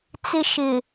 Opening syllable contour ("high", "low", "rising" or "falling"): high